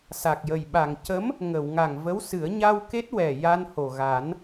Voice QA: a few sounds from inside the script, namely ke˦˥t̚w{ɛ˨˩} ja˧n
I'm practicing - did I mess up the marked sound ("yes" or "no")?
no